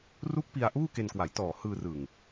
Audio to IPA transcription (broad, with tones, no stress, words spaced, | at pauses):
ru˦˥k̚ pi˧a̯ʔuː˥˩ke˧nkwa˩˦j tɔː˨˩hɯː˧rɯ˨˩ŋ